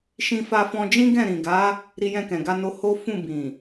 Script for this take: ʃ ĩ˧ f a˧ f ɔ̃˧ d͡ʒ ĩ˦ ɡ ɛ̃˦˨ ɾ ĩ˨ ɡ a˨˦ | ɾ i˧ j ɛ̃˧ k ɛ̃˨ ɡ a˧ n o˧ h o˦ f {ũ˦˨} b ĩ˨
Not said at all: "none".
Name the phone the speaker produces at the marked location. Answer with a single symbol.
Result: ũ˦˨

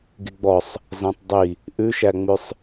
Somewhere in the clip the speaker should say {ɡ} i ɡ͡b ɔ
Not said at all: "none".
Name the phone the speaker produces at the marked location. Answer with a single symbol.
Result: ɡ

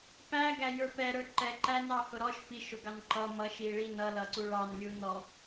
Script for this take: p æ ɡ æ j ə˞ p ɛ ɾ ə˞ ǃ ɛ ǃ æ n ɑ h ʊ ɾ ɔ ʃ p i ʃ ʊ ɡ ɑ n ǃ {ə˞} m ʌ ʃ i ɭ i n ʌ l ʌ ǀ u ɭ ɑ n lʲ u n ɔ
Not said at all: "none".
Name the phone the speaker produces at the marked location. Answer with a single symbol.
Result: ʌ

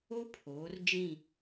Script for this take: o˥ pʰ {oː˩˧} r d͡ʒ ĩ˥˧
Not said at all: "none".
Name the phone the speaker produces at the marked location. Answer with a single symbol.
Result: oː˩˧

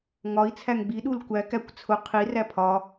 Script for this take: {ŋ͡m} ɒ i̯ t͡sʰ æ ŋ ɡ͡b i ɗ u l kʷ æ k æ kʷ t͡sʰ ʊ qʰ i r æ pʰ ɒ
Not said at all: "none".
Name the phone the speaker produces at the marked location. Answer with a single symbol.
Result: ŋ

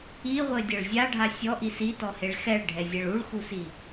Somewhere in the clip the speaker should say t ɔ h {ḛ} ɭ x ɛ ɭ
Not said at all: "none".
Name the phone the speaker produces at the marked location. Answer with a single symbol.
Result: e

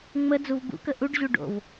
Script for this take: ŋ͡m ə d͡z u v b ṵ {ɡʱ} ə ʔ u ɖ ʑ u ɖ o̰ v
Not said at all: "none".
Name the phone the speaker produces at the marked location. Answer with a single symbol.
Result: k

